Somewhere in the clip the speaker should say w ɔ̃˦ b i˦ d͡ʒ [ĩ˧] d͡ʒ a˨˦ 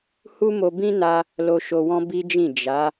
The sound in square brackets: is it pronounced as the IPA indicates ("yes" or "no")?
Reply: no